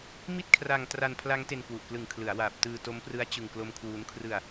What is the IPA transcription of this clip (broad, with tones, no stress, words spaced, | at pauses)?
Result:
mi˥˩t̚kʰra˧ŋ tra˧npʰla˦˥ŋ te˧nkwu˨˩ʔklɯ˨˩ŋ kʰlɯ˩˦a̯waː˨˩p̚ tɯː˧to˦˥mprɯ˦˥a̯ t͡ɕɯ˧ŋklo˦˥mkʰwuː˦˥n kʰrɯ˧a̯